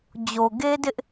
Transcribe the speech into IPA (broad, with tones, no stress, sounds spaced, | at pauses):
d͡ʑ o˨ ɡ e˦ d ɪ˦ ʔ